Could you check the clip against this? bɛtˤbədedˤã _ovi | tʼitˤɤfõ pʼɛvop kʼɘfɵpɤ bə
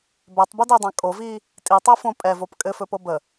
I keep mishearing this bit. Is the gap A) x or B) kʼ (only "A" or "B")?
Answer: B